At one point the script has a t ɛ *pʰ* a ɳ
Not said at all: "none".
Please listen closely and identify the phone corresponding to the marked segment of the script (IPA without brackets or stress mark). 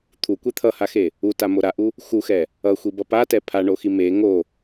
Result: pʰ